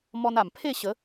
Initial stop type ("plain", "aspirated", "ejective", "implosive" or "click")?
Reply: aspirated